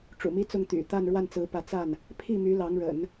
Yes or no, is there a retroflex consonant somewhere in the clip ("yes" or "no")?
yes